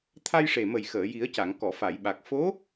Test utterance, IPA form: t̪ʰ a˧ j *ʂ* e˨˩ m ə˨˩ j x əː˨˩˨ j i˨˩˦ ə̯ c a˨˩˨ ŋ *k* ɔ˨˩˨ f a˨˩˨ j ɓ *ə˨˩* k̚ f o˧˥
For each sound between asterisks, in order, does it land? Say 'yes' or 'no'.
yes, yes, no

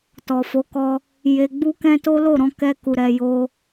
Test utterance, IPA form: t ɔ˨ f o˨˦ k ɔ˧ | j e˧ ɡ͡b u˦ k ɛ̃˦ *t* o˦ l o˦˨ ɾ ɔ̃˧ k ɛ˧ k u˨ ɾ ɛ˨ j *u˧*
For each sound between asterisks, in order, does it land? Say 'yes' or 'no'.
yes, no

